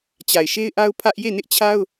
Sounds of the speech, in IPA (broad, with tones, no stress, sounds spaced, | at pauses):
t͡ɕ a˨ ɪ̯ ʃ e˦ ɪ̯ ʔ a˦ ʊ̯ pʰ ä˦ ʔ j e˦˨ n ɪ˦ ʔ t͡ɕʰ a˦ ʊ̯